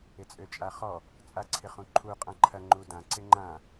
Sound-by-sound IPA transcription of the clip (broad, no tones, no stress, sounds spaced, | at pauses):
ɪ t͡sʼ ø t͡ʃʼ a χ ɔ | t͡sʼ a ǀʰ ɪ χ ũ ǃʰ u qʼ ã ǃʰ ɐ ŋ͡ǃ u d ã ǀ ɪ ŋ͡ǃ ã